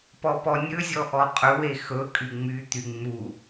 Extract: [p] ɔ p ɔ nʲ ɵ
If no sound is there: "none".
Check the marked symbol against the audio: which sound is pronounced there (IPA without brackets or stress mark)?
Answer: p